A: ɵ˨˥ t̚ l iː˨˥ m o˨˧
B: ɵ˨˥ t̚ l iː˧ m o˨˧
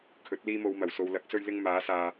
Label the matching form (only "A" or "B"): B